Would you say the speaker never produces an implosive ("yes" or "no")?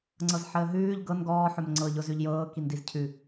yes